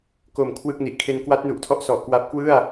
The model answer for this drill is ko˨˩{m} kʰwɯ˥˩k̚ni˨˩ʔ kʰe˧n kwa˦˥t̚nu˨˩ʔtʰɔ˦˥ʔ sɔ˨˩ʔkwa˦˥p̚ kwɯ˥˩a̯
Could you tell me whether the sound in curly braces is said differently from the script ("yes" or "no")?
no